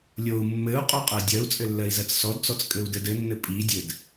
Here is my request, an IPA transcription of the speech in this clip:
lʲ o u̯ mː ɘ u̯ qʼ o qʼ ɜ dʲ ɜ u̯ t͡sʼ ɘ lː ɜ i̯ z ɜ t͡s s ɔ d t͡s ɔ t͡s kʼ ɘ u̯ d ɘ d ɘ nː ɘ pʼ i dʲ ɘ d

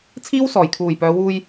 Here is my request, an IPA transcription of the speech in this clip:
t͡sʰ iː˥ w s ɔː˨˩ j kʰ uː˨˩ j p œː˨˧ w uː˧ j

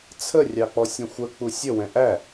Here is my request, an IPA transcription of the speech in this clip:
t͡sʰ ə rʲ ɑ k͡p ɔ sʲ ɛ̃ xʷ ə k͡p u sʲ ə w ɛ̃ ʔ æ

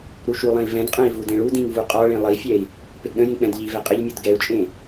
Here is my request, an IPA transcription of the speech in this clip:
ɾ u ʃ u lˠ ɛ̃ i̯ v ɛ̃ d qʼ ɛ̃ i̯ v u d ẽ ɭ u d ĩ ŋ v u qʼ ɒ ɭ ẽ lˠ ə i̯ fʲ ɛ i̯ | p e ɡ ɗ ə̃ j ĩ k͡p ɛ̃ d ʎ i v ɛ qʼ ə ʎ mʲ u d ɡ ɛ u̯ t͡ʃʼ ẽ

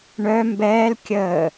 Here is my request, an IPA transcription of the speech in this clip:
ɳ œ m b ɛː l kʲ əː

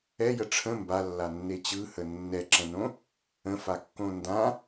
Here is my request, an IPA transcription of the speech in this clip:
ɛ j ə ʈ͡ʂʰ ə̃ m b a lː a nː e t͡ɕ ɯ h ə nː ɛ ǁ ɛ̃ n õ | ə̃ f a kː õ n d ã

